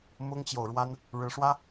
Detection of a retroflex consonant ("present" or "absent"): present